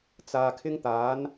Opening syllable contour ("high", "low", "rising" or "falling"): low